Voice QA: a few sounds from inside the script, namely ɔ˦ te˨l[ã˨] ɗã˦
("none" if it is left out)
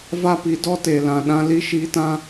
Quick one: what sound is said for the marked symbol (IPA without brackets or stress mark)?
ã˨